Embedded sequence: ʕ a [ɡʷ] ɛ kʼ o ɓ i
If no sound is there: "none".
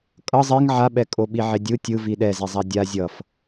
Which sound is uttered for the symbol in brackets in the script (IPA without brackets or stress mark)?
ɓ